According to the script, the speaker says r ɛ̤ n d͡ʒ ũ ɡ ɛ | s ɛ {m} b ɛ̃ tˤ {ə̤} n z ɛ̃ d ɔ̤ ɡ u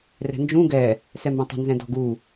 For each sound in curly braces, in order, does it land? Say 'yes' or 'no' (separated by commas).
yes, yes